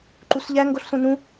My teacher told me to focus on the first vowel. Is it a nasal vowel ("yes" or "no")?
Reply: no